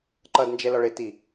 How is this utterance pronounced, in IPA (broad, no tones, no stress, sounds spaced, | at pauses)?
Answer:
ǃ ʌ d n d͡ʒ ɛ l ɔ ɭ ɪ t i